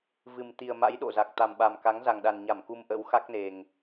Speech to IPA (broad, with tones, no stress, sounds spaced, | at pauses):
v ɨ˨˩ m t̪ i˨˩ ə̯ m a̰˧˥ j ɗ o̰˧˨ z a˨˩ k̚ t̪ a˨˩ m ɓ a˨˩ m k a˨˦ ŋ z a˨˩ ŋ ɗ a˨˩ n ɲ a˧˩ m k u˧ m ʔ ə̰˧˥ w x a˦˥ k̚ n e˨˩ ŋ